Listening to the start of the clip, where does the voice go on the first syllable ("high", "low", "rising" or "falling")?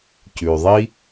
low